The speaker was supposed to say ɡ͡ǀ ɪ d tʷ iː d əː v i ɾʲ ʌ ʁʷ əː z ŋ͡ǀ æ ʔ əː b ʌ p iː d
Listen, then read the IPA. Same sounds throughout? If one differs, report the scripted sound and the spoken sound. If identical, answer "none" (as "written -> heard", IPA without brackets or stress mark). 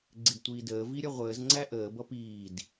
none